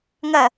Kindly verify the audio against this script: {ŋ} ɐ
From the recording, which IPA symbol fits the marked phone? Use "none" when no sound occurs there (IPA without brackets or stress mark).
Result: ŋ